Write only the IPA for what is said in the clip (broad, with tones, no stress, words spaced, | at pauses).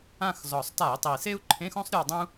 ã˦˨xzɔ˨˩sˤta˧˩˧i̯tˤi˨˩ se˥u̯ǃʰẽ˧˥˧xõ˥sˤ ɾʲɔ˦˨ dˤũ˥